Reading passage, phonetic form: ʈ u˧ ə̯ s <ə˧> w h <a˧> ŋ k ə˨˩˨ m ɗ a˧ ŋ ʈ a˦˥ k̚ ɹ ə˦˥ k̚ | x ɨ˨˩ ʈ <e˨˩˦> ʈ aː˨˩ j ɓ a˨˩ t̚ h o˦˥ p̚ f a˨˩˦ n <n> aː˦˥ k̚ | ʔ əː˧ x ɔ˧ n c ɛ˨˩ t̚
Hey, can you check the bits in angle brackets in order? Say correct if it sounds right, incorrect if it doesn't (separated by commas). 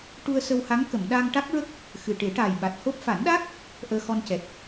correct, incorrect, correct, incorrect